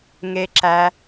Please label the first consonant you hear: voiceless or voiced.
voiced